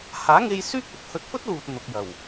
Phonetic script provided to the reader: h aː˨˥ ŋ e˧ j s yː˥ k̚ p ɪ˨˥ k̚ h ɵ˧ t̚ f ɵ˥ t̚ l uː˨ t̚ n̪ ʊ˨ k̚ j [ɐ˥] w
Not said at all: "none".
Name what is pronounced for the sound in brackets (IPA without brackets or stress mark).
ɐ˨˩